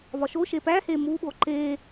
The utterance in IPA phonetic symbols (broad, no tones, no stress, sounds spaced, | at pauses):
v ɒ ʃ o ʃ e p æ h e m u ɓ o ǃ e